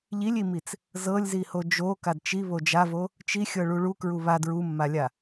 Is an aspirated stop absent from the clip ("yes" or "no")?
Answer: yes